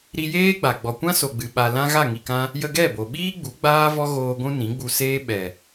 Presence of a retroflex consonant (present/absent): absent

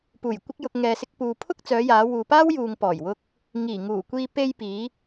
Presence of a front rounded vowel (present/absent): present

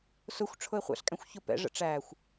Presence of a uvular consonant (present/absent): present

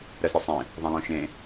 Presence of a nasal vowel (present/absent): present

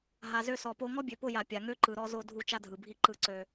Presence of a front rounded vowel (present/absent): present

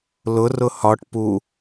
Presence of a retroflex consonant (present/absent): present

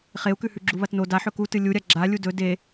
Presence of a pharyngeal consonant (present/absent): present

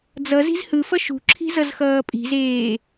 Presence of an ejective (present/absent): present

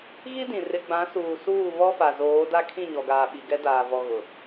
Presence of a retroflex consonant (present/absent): absent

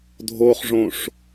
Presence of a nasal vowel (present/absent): present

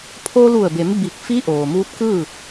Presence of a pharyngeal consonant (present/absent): absent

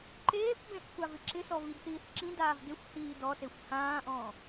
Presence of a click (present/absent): present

